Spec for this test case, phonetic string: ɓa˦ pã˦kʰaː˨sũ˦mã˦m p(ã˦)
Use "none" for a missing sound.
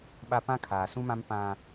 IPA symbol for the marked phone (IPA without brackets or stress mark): ã˦